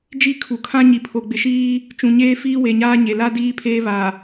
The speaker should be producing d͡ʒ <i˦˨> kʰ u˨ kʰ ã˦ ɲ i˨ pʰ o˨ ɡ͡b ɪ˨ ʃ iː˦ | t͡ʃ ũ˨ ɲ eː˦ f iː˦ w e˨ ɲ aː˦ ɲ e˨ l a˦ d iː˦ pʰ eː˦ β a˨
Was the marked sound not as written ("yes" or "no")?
no